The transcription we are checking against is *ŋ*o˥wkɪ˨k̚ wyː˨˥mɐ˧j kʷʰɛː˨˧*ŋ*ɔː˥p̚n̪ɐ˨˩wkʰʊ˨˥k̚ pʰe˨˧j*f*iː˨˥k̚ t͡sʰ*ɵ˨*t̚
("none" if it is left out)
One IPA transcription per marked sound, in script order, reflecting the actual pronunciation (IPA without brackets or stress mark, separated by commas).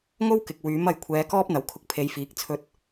ŋ, k, f, ɵ˨